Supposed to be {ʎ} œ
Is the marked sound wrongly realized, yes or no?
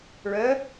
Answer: yes